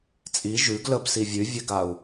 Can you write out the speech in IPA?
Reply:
t͡sʼ i ʒ ʉ ɡ l ə b s i vʲ ʉ vʲ ɛ ɡ a u̯

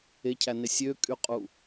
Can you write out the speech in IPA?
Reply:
e cʰ æ n e sʲ ø kʼ y qʼ u

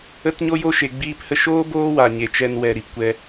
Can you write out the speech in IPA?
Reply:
ə˧ t ɲ o˧ j o˧ ʃ e˨ ɡ͡b iː˧ p h ə˧ ʃ oː˦ b oː˦ w a˨ ɲ e˨ t͡ʃ ɛ˧ n w ɛ˨ ɾ i˨ p kʷ ɛ˧

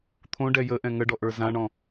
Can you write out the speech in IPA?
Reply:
t̪ʰ õ ɖ ɛ j ə ʔ ɛ̃ ŋ ə ɖ ɔ ʔ ə˞ z ã ɳ ɔ̃

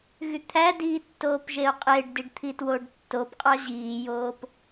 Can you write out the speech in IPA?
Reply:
ɣ y t̪ʰ æ d iː tː oː p ʒ e o̯ qʼ e ɖ d i ɖ t̪ʰ i t w o ɖ tː o p qʼ ɑ ʑ iː j oː p

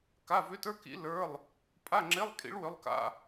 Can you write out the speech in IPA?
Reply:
k a˧˥˧ v ʏ˧˥ t ə˞˧˥˧ k ḭ˧˥ l ə˞˧˥˧ lˠ | pʼ a˧˥˧ ŋ͡ǁ e˧˥˧ lˠ kʼ ḭ˧˥ ɭ w ʏ˧˥˧ lˠ k a̰˧˥˧

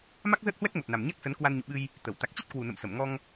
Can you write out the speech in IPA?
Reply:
m a˦˥ k̚ z əː˦˥ t̚ h w ɛ˦˥ k̚ m o˨˩ t̚ n a˨˩ m ɲ a˦˥ k̚ s ə˨˦ n k w a˧ n ɲ ṵ˧˨ ɓ ɨ˧ j | t̪ ə˧˩ w t̪ a˨˩ k̚ t͡ɕ i˦˥ t̚ k w u˨˩ n ə̰˧˨ m s ə˧˩ m ŋ ɔ˧ ŋ

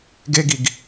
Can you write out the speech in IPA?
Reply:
ɡ e ɡ i ɡ

